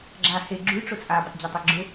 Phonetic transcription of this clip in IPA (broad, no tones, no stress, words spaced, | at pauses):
ɡ͡ǁa he ɡ͡ǁʉ ʈ͡ʂʊt͡sʼa bətˤd͡ʑatˤɛɡ͡ǁʊ